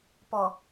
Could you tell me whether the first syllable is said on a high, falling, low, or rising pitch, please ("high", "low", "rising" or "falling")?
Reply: low